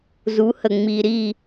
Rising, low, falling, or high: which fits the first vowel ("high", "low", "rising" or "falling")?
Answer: rising